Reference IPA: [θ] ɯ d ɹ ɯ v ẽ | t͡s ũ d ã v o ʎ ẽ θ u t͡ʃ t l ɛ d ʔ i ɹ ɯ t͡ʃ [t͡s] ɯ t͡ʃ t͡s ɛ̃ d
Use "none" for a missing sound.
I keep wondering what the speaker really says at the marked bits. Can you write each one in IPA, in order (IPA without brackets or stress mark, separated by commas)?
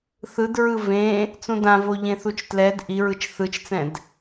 θ, θ